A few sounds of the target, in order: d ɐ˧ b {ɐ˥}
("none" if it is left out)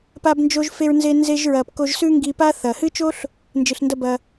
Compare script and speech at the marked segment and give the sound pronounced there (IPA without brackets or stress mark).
ɐ˩